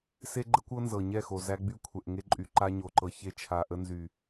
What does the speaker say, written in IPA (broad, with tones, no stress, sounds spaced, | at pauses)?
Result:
s e˦ ɡ͡ǃ ə˦ kʷ ɤ˦ n z ɤ˨ ɲ ɛ˦˨ x o˨ z æ˦ ɡ͡b y˦ kʷʰ ɛ˨ ʔ ŋ e˦ ǃʼ y˨ ǃ a˦ ɲ o˨ ǃ ɤ˨ ç e˦ t͡ʃʰ a˨ ʔ ə˦ n z y˨